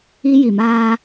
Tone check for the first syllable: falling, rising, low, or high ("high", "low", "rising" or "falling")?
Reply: high